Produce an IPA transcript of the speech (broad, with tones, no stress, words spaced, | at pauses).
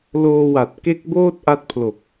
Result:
loː˧wa˨˩t̚ ke˦˥k̚boː˥˩t̚ ʔa˦˥t̚pʰlo˨˩k̚